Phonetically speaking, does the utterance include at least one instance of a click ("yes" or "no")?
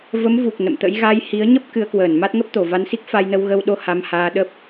no